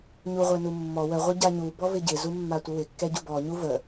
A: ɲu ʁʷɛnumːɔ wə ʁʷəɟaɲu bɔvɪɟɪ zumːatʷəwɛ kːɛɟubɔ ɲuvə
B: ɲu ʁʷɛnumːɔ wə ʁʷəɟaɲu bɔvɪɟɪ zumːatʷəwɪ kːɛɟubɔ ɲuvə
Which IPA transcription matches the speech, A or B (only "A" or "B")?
B